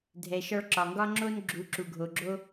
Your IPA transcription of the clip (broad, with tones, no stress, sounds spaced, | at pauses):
dʱ ɛ˨ ʃ ɒ˧ ɭ ǁ ɒ˨ ŋ ɡ ɒ˦ ŋ͡ǁ o˧ n ɡ͡ǁ u˨˦ ǁ u˨ ɡʱ o˨ ɡ͡ǁ o˦